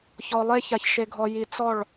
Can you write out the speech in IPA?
ç ɔ˨ lˠ e˧ ç a˨ ç ʃ e˨ ɡʱ ɔ˨ j i˨ t͡s ɔ˦˨ ɭ

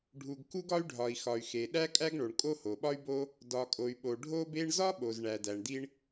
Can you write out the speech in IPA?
ɖʱ u˩ ɡ k u˥ ɡ ɒ˥ y̯ ɖʱ ɒ˩ i̯ x ɒ˩ y̯ x e˩ ɗ æ˥ kʼ æ˥ ɡ ɳ o˩ ɳ kʼ o˥ h o˩ ɓ ɒ˥ y̯ b o˥ | d ɒ˩ kʼ o˩ y̯ ɓ o˩ ɖʱ o˥ b e˥ ɳ z ɒ˥ ɓ o˩ z ɳ æ˩ d æ˩ ɳ d i˥ ɳ

